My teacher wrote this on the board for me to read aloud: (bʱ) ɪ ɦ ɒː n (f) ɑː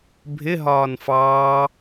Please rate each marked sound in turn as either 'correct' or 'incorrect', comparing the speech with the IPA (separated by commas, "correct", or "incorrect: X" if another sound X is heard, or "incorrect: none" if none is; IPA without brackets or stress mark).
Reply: correct, correct